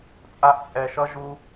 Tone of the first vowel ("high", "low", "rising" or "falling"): high